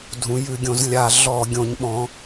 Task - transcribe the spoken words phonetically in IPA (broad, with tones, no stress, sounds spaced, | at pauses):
dʱ ũ˩˥ j ʉ˧˩˧ ɡʲ õ˩˥ z lʲ a˧˩˧ ɮ ɔ˧˩˧ ɡʲ õ˩˥ ɲ ɓ ɔ̃˩˥